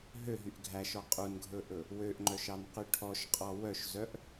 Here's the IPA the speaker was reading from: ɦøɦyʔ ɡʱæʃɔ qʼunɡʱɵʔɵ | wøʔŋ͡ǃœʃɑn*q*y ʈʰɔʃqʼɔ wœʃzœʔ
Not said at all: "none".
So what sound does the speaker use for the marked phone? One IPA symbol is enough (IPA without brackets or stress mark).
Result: q